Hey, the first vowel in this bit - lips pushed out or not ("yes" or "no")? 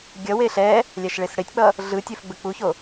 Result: no